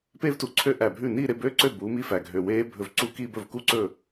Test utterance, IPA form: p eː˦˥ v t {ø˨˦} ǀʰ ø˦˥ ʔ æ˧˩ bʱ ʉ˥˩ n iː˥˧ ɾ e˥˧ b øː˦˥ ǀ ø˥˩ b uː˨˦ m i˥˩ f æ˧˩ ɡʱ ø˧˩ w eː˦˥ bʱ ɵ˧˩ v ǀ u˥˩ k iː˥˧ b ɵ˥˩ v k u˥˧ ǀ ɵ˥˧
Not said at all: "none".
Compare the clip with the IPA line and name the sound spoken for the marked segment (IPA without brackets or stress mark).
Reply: u˨˦